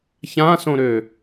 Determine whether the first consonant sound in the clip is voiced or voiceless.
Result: voiceless